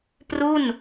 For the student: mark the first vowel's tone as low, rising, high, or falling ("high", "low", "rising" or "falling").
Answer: falling